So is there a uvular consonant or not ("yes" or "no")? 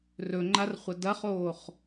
yes